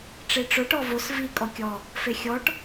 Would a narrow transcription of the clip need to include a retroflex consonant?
yes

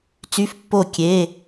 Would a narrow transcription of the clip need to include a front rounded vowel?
yes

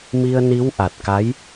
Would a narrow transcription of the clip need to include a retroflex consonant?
no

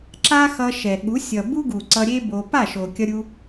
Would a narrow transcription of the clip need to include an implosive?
yes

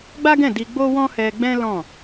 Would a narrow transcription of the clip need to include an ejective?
no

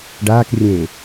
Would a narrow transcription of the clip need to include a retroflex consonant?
yes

